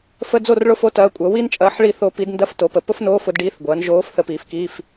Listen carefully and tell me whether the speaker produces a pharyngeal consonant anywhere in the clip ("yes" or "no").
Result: yes